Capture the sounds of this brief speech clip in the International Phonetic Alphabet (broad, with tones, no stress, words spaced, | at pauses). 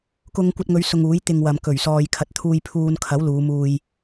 kʊ˧ŋkʷɐ˧t̚ŋɵ˨˧ɥ sʊ˧ŋuː˨˥jt̪ɪ˧ŋwɐ˨m kɵ˨˩ɥsɔː˨j kʰɐ˨˥t̚t̪ʰuː˧j pʰuː˧nkʰɐ˨˥w luː˨˧muː˧j